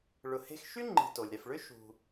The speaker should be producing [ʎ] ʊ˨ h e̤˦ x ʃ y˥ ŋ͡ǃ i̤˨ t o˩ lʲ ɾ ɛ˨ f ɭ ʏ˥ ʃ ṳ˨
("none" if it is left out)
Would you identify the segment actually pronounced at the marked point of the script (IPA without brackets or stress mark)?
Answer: ɭ